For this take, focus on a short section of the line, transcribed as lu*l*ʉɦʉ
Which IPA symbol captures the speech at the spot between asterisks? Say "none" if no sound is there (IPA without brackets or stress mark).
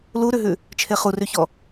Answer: ɾ